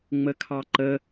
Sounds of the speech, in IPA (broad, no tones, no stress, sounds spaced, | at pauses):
ŋ͡m ə kʰ ɑ ǃ ə